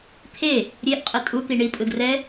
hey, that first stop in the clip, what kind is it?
aspirated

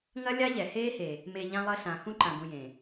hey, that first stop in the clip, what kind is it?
click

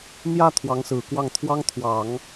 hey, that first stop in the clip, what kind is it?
aspirated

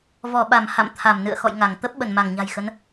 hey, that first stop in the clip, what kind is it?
implosive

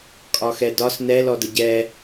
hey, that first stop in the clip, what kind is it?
ejective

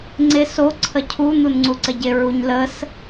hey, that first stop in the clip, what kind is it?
click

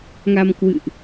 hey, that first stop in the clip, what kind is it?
plain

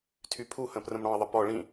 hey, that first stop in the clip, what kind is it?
aspirated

